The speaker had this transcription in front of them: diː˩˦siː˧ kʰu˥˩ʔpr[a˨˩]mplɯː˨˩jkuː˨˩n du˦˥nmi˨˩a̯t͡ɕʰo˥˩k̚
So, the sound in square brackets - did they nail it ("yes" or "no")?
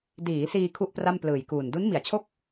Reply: no